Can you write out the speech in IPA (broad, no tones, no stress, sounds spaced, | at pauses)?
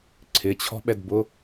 ǀʰ ɪ t͡ɕʰ ɔ̤ ɓ ɛ d b ʊ